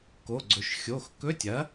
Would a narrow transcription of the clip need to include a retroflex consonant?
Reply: no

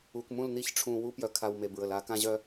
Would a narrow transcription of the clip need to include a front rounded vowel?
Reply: yes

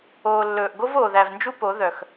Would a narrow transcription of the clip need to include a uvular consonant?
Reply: no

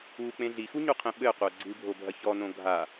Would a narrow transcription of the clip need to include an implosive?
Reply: yes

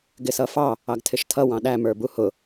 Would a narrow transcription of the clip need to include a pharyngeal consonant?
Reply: no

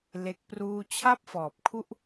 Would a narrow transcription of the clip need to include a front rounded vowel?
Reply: no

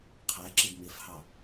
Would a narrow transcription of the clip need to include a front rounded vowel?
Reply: no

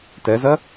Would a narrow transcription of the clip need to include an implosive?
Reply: no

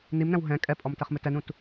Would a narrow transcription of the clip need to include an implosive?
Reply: no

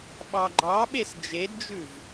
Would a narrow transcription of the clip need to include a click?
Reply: yes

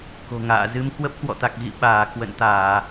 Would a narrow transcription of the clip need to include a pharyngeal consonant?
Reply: no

